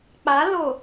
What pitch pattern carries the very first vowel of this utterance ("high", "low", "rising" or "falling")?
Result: rising